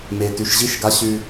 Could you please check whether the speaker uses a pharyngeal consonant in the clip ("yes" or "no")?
no